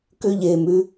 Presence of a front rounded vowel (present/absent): present